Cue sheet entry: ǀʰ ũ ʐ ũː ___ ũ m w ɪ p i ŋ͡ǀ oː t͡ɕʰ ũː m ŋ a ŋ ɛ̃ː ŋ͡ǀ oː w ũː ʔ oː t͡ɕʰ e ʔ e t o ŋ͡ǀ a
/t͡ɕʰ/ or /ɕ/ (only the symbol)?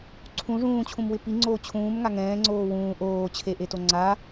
t͡ɕʰ